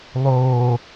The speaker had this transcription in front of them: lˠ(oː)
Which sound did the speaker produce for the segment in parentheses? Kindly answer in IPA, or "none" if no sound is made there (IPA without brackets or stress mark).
oː